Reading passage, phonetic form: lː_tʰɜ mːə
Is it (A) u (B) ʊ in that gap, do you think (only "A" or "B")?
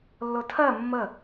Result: B